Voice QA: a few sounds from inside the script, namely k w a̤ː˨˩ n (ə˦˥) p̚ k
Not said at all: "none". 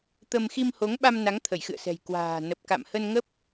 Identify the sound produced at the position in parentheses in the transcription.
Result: ə˨˩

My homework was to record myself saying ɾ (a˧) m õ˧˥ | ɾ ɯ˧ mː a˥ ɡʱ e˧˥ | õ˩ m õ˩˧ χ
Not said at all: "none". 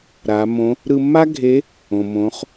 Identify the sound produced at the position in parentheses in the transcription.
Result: a˩˧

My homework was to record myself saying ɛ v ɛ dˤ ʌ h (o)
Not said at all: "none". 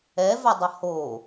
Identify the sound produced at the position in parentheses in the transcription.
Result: o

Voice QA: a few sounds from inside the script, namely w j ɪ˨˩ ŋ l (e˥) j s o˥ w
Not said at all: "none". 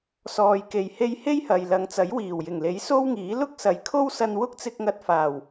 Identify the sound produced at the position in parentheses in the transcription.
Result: e˨˥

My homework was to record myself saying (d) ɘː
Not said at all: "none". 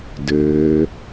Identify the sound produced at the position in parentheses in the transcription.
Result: d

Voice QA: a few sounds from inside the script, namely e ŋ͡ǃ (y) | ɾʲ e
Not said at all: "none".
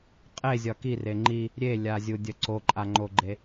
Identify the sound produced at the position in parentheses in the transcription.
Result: i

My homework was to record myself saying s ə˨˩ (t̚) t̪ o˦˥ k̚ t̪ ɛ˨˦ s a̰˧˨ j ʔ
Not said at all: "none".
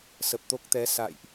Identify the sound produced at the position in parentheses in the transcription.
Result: p̚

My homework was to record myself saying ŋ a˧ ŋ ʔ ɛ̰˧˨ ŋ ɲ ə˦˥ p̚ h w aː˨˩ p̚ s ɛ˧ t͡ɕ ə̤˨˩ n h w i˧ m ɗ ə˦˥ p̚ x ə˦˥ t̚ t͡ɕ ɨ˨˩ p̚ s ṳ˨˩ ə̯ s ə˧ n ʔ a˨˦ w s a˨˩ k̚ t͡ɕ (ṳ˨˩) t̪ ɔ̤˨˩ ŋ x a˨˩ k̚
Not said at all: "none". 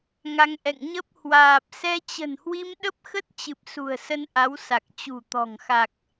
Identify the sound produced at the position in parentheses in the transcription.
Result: ṳ˨˩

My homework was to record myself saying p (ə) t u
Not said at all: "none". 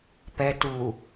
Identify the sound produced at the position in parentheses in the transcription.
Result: ɛ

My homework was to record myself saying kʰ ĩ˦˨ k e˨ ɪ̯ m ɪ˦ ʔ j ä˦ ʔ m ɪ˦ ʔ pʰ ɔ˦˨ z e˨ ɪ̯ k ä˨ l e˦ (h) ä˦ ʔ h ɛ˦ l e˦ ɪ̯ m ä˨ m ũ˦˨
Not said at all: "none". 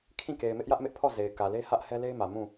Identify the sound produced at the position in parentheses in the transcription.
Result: h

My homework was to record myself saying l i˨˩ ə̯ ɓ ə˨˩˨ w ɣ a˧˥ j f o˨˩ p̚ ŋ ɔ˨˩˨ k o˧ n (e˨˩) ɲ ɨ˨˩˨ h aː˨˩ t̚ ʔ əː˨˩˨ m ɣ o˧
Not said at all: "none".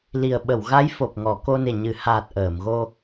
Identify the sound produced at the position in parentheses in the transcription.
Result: e˨˩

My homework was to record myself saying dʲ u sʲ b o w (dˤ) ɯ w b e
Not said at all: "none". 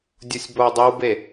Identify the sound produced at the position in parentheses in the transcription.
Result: dˤ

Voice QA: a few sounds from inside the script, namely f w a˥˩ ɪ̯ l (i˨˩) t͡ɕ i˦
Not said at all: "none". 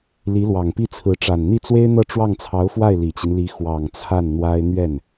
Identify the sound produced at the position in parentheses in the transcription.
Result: i˨˩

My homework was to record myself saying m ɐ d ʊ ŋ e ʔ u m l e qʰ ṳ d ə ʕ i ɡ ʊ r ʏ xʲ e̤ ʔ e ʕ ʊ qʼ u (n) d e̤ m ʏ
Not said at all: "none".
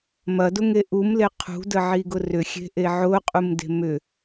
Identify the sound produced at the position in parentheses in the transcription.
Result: m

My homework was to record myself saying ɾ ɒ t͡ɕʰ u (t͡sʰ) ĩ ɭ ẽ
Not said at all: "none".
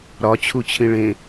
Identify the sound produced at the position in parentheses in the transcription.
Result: t͡ɕʰ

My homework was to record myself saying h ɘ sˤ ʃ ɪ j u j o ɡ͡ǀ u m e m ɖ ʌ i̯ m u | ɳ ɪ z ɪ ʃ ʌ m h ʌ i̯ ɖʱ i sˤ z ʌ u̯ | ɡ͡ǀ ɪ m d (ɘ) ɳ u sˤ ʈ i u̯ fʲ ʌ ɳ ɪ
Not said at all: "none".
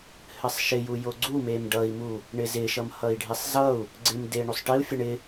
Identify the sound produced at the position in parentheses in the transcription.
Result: e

